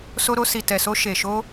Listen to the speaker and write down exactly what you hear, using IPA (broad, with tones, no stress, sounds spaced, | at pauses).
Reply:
s o˧ ɾ o˧ s i˨ t ɛ˨ s o˧ ʃ e˨ ʃ o˧